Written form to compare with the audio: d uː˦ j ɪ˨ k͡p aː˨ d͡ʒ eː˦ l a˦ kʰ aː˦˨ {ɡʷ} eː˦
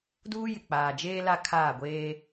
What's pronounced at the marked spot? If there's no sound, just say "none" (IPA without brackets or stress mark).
ɡʷ